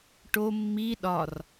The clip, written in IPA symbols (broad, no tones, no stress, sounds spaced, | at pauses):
ʈ o mː i ɗ ɒ r